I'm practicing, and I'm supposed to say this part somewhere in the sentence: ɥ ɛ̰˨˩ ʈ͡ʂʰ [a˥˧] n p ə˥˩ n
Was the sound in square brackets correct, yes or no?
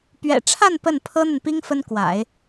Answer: yes